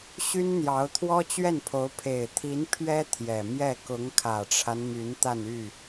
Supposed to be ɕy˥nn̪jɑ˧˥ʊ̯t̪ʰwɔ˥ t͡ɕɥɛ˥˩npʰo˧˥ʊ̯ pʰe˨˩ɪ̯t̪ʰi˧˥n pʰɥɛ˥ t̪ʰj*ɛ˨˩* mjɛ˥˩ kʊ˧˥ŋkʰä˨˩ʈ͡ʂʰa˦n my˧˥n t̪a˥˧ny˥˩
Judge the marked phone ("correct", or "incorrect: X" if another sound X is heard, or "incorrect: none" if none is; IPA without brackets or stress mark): correct